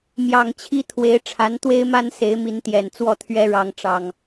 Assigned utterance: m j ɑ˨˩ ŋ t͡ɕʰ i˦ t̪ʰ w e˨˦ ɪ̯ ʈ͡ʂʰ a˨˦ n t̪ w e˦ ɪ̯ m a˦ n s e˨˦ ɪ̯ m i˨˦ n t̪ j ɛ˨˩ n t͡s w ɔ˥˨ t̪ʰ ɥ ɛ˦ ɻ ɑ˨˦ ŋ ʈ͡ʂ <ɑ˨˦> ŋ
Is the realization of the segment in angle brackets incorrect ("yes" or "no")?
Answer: yes